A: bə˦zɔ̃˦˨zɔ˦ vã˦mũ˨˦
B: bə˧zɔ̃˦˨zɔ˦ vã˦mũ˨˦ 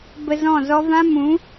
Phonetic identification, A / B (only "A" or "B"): B